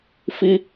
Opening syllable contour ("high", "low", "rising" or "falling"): high